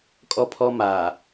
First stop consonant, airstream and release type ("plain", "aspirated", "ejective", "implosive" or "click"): ejective